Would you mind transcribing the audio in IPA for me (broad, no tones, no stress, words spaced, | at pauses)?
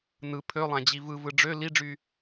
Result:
nɯ pʰølˠæ̃d͡ʑi vɯvɯ ɖ͡ʐø liɖ͡ʐy